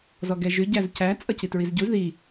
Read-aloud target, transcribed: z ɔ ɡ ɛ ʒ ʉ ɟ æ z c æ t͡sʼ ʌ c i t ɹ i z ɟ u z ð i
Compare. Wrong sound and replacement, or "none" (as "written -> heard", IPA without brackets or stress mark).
none